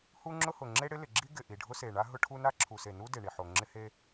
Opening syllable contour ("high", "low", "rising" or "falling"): high